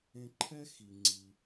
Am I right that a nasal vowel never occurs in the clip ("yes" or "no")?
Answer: no